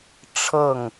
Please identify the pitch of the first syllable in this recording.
falling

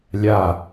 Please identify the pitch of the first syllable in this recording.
low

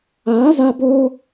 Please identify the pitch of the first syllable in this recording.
rising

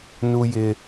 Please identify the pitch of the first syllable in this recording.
high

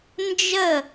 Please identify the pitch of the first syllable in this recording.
falling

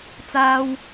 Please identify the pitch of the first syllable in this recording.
high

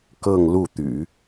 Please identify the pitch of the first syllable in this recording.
falling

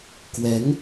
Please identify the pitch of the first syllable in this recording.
rising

